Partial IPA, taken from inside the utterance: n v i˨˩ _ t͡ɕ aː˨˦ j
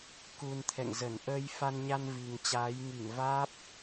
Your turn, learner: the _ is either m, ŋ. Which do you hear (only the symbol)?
ŋ